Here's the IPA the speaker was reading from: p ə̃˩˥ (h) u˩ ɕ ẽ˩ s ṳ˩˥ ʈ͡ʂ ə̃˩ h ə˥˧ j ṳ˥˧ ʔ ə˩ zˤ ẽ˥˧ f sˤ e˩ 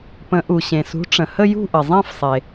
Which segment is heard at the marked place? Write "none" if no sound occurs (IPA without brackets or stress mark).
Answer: ʔ